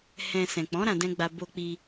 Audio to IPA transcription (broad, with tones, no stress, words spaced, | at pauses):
hɛ̃˧ sɛ̃˨k͡pɔ̃˨˦ ɾã˧dɛ̃˦ɡ͡ba˧ bo˧k͡pi˧